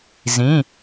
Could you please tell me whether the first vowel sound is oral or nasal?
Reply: nasal